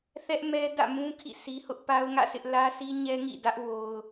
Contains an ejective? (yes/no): no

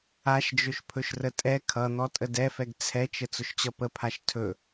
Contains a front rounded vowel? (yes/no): no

